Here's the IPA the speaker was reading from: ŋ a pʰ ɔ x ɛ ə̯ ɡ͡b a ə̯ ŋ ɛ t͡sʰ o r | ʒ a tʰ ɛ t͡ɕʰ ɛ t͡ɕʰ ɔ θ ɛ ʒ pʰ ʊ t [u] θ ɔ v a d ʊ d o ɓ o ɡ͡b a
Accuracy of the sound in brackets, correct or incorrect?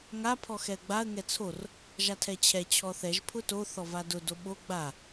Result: incorrect